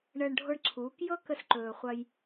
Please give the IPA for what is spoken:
ɳəː˧ɳɖʱo˧ɳǀʰuː˨˦kjɤ˦ kə˧s ǃɵː˨χʷɐ˧j

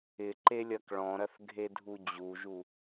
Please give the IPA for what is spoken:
ɪǃelʲɐk ɭɔ̃ɾɐθɡʱedʱu d͡ʑuʒu

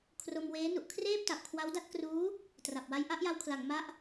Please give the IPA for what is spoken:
kʰro˧mweː˦˥nu˨˩ʔ kʰreː˥˩p̚ta˨˩p̚ kʰwa˦˥wda˥˩t̚ kruː˦˥ | tra˨˩p̚wa˧j ʔa˥˩ʔja˧wkʰla˩˦ŋ ma˦˥ʔ

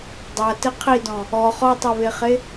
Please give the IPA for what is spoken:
dˤatɘ qʰidɔ̃ | ɔ χɔtˤɛβeχe

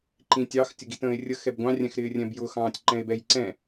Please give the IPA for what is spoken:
ǃĩtʲɑx tʲəɡitə̃ːe̯rʲə xɛbɡʷɑ̃ rʲɛ̃xɾɪːrʲɛ̃bjʊ xɑ̃ːtʲǃɛ̃e̯bɛj ǀɛ̃

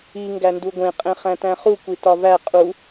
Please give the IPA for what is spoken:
i ŋɡænduɡʷẽ qʼẽχæ̃tæ̃χu kʷitɒvæ qʼu

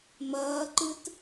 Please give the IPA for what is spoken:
mɐːǃɨt

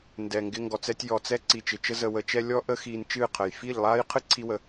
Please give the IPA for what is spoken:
ndɛ˨ŋɡɪ˧ ŋɡɔ˨t͡sɛ˧tʲ jɔ˨t͡sɛ˧ ǀi˨t͡ʃɪ˨t͡ʃə˧ zə˨wə˨t͡ʃɛ˧ lʲɔ˧ʔə˧ xiː˧n t͡ʃɨː˦˨qʰə˨j fi˦˨ʎlˠaː˦j qʰɨ˦ǀʰi˧wə˨

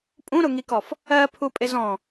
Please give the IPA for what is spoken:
pʼũɾʊŋikɔf | ɜpʰupʼɪz ɔ̃

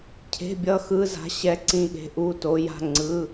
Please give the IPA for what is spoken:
cʰe̤˧˥˧bʲʌ˧˥˧xɯ˧˥˧ za̤˧˥˧ɕɛ˧˥˧ǀĩ˧˥˧ɠe̤˨˥ ʔu˧˥˧to˨˥ ja̤˧˥˧ŋ͡ǀɯ˧˥˧

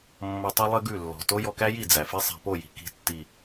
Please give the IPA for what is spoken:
mːʌ˧tˤʉ˦lˠɘ˦ɡʉ˦˨ lːɔ̤˨to˦ jɔ˧kæ˦ji˦˨ d͡zæ˨fi˦sˤæ̤˧ po˦˨ji̤˨ ki̤˨tːi˨

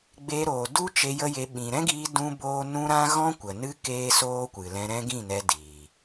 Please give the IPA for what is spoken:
ɡ͡be˧ɾoː˨ du˦t͡ʃe˧ jə˦je˧ ɓĩ˨ɾɛ̃˦ɡiː˧ dũ˦boː˦ nũ˦ɾã˦ ɣɔ̃˦kʷə˨nɨ˦ keː˦soː˦kʷɨ˨lɛ̃˧ ɾɛ̃˦ɡĩ˦˨nɛ˧ diː˨

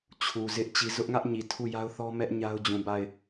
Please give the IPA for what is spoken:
t͡ɕʰu˨zɪ˦ʔ t͡ɕi˨ zʊ˦ʔŋä˦ʔ ɲi˨tʰu˦˨ ja˦ʊ̯θɔ˦mɛ˦ʔ ɲa˦ʊ̯d͡ʑũ˨ba˦˨ɪ̯

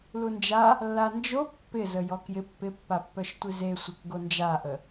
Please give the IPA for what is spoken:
lund͡ʒa | lːand͡ʒo pːɪzə jɔkjɪ pːɪpːapːœʃ tʷizesʷɪk ɡond͡ʒaʔə

